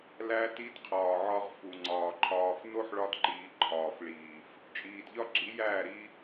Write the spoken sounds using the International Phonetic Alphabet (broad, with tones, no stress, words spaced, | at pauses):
læ˧ti˧d qʰɒː˨ʕɒ˧ʁ fu˨ŋ͡ǀɒː˨ǃʰɒː˧f no˦ħɭɒ˧dǃiː˨ ǃʰɒː˨fɭiː˨f | t͡ʃʼiː˨dʎɒ˦ɡ͡ǁi˨˦jæː˦˨ ɾi˧